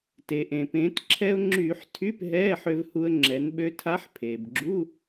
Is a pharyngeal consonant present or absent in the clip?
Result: present